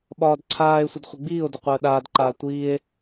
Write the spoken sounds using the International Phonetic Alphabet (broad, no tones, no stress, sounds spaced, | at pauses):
ɓ ɒː d ǀʰ aː e̯ sʷ ə d χʷ ə ɡ͡b iː o̯ d ə qʷ əː ɗ aː d ǃ aː tʷ iː e̯